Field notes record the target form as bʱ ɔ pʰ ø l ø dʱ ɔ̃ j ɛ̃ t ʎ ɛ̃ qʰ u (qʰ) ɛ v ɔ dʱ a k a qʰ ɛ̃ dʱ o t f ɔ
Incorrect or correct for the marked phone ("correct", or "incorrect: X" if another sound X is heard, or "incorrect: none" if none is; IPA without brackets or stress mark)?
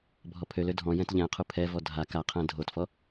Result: incorrect: pʰ